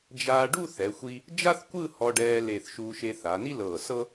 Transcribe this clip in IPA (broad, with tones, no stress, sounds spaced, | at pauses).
d͡ʒ aː˧ ɖ u˥˧ θ ɛ˩˧ xʷ i˧ | d͡ʒ a˥ θ kʷ ɯ˥˧ h ɔ˧ ɖ ɛː˧ l e˧˩ θ ʃ uː˧ ʃ e˧ θ a˩˧ n i˥ l ɤː˧˩ s ɤ˥